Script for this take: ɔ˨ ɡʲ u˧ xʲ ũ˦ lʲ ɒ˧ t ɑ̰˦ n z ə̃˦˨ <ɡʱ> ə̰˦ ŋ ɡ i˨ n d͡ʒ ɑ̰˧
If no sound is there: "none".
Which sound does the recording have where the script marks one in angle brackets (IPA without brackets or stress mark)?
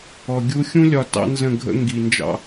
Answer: ɡʱ